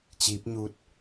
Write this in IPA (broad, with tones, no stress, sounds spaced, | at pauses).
t͡ɕ iː˧˥ p̚ ɲ u˧˥ t̚